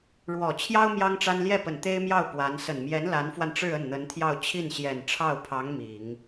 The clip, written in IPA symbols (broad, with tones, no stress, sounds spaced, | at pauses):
ɻ w ɔ˨˩ t͡ɕʰ j ɑ˥ ʊ̯ m j ɑ˥ ŋ ʈ͡ʂ a˥ n l j ɛ˥˩ p ə˨˩ n t̪ e˥ ɪ̯ m j ɑ˥˩ ʊ̯ p w a˧˥ n s ə˨˩ n m j ɛ˧˥ n l a˧˥ n f w a˧ n ʈ͡ʂ ɻ̩˥˧ ə˥˩ n n̪ ə˧˥ n t̪ʰ j ɑ˥˧ ʊ̯ t͡ɕʰ i˥˩ n ɕ j ɛ˨˩ n ʈ͡ʂʰ ɑ˥˩ ʊ̯ pʰ ɑ˧˥ ŋ m i˨˩˦ ŋ